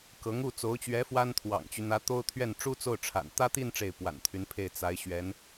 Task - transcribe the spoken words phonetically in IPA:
kɤ˧˥ŋu˥˩ t͡so˧˥ʊ̯t͡ɕɥɛ˧˥ fwa˥nt̪ʰwɑ̰˨˩ŋt͡ɕy˦ n̪ä˧˥ t̪o˥ʊ̯ t̪ʰɥɛ˥˩n ʈ͡ʂu˥t͡so˥˩ʊ̯ʈ͡ʂʰa̰˨˩n t̪ä˥t̪i˥˧n ʈ͡ʂe˥˩ɪ̯pwa̰˨˩nt̪ʰy˧˥npʰe˥˩ɪ̯ t͡sa˧˥ɪ̯ ɕɥɛ˧˥n

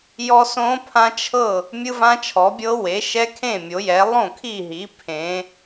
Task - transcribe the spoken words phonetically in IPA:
jɔ˦˥sõ˦˥pʰã˦˥t͡ʃʰɤ˥˩ | mʲɯ˦˥vã˦˥t͡ʃʰɔ˩˥bʲɤ˦˥ we˩˥ ʃɛ˦˥kʰẽ˥˩mʲo˩˥jɛ˩˥ lˠõ˥˩kʰi˥˩ɦi˩˥ pʰẽ˩˥

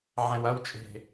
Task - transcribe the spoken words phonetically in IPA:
ʕɛ̃wɐwt͡ʃʼe̤

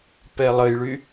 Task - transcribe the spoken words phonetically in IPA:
pɛlˠəjɭy

